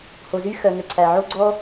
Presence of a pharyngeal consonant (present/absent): present